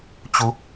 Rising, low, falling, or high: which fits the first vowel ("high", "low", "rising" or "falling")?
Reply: rising